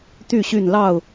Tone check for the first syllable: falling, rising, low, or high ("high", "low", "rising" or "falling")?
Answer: falling